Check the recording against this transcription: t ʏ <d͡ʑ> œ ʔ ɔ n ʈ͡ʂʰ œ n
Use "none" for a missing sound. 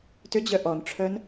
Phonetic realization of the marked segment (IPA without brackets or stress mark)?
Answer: d͡ʑ